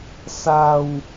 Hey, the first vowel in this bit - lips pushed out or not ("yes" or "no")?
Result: no